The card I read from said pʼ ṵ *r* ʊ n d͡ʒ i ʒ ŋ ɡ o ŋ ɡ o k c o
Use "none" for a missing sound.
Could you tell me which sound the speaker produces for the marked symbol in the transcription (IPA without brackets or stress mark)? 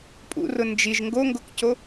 r